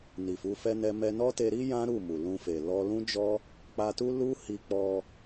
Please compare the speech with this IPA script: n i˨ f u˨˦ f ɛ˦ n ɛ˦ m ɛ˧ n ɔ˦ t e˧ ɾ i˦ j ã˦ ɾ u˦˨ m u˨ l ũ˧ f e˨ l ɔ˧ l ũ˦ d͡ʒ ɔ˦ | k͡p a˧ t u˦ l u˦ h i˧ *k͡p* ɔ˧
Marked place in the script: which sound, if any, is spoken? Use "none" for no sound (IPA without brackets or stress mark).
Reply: k͡p